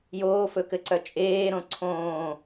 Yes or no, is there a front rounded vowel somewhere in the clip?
yes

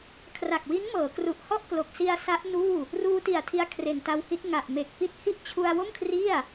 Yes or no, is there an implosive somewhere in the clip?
no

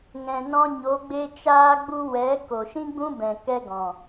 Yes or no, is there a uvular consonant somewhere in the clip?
no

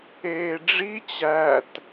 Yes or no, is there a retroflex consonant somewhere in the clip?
yes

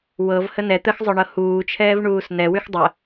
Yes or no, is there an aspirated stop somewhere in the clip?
yes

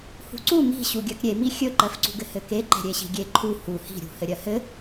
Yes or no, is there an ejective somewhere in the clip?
no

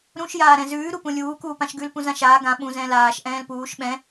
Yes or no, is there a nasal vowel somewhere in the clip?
yes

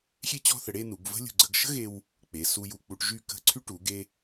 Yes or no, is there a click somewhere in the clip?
yes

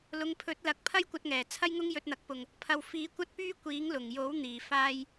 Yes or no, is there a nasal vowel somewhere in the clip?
no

